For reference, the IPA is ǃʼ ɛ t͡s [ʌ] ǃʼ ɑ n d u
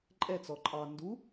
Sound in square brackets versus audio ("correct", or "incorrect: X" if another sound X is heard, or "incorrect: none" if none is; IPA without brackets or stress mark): incorrect: ɔ